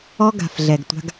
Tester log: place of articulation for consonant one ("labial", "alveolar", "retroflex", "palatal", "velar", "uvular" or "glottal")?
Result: velar